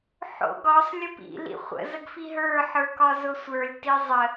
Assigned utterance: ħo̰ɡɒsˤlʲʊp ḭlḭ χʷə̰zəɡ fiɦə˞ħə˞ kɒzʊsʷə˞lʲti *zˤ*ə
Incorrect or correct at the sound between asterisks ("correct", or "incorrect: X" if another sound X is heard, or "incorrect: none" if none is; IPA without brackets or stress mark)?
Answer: correct